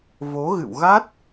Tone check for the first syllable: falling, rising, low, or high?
rising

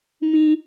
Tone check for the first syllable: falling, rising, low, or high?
high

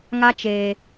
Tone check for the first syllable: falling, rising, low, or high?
high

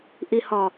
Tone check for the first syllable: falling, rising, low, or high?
low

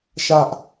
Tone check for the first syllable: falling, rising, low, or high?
high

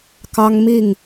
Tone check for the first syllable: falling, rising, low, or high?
high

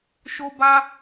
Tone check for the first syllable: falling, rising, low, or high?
high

